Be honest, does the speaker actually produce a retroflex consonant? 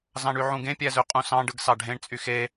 yes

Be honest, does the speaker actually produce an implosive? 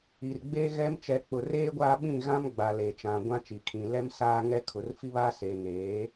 yes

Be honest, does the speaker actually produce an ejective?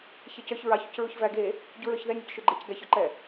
no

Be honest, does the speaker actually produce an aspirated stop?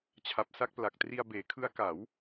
yes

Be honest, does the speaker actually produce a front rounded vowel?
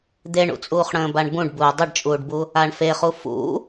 no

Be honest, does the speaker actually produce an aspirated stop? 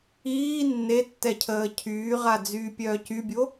yes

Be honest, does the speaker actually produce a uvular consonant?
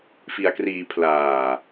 no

